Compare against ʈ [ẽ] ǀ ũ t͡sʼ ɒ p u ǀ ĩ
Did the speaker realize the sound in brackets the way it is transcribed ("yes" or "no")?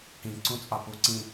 no